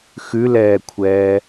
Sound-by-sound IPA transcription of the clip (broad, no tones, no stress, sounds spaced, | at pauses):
x ʉ l ɛː kʷʰ ɛː